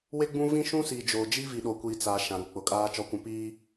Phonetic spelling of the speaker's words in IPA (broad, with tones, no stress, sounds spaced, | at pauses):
w e˦ ɡ͡b ũ˦ v ĩ˦ ʃ ũ˦ s i˨ d͡ʒ o˨ d͡ʒ i˦ v i˨ ɗ o˨ kʷ iː˨ t͡s a˨ ʃ ã˨ ɾ u˨˦ k͡p ʊ˨ kʼ aː˦ t͡ʃ ɔ˨ kʷ ũ˨ p iː˦